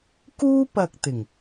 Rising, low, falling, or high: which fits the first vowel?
high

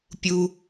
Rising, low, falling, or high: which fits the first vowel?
low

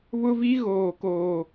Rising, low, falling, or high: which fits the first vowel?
high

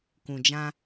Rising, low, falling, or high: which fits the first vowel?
low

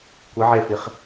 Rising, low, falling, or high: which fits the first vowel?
rising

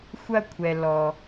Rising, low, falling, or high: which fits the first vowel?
falling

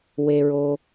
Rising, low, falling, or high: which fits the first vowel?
low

